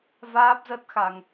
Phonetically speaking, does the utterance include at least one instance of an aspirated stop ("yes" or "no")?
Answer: no